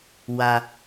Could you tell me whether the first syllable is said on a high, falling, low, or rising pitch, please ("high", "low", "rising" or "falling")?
low